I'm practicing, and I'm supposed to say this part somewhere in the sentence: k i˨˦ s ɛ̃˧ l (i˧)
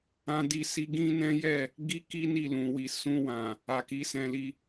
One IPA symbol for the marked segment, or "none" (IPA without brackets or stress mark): i˧